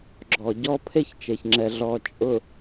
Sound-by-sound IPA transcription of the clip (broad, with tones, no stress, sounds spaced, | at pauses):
ɡ͡ǁ ɔ˨ ɟ ɔ˦ pʰ e˦ ç t͡ʃ e˨ ç ŋ͡ǁ ɛ˨ ɮ ɔ˨ t͡ʃʼ ʊ˨